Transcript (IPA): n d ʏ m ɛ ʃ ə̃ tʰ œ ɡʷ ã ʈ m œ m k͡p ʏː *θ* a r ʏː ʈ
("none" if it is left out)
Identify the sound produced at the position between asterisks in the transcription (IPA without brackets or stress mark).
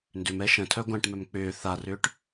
θ